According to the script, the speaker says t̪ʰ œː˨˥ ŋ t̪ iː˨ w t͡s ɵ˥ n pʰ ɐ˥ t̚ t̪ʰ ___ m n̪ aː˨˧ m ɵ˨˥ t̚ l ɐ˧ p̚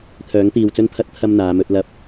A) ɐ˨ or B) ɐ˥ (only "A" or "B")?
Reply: B